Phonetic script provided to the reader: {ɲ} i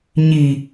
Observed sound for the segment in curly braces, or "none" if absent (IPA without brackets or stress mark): ɲ